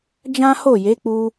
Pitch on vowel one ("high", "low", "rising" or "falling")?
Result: high